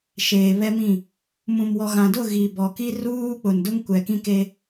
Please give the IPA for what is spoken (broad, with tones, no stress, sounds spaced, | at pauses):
ʃ eː˨ β ɛ˦ m ĩ˦˨ | m ũ˨ m w ɔ˨ ɣ ã˨ d ʊ˦˨ ɣ i˨ b ɔ˨ k i˦ r uː˦ k͡p ʊ˨ n d ʊ˦ ŋ kʷ ɛ˨ k ĩ˦ k e˦